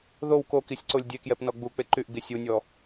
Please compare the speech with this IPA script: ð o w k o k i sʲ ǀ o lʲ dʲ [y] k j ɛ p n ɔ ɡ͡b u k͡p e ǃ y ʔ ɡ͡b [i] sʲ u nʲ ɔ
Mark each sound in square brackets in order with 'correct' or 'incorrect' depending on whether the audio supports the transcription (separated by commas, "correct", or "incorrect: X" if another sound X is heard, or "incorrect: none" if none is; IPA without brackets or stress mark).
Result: incorrect: e, correct